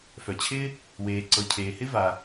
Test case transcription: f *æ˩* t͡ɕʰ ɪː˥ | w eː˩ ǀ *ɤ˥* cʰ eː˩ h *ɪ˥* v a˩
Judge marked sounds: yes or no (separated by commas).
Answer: no, no, yes